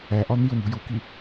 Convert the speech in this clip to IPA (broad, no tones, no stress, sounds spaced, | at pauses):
æ ʔ ɒ n̪ i ʊ̯ n̪ ṳ j u k i